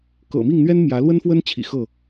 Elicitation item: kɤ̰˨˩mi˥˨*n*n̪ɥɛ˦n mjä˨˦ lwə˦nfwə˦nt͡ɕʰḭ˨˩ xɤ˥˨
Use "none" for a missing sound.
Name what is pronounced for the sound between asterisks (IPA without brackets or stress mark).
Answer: ŋ